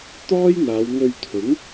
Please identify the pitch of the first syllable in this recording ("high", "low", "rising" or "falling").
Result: high